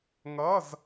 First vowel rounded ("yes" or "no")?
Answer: no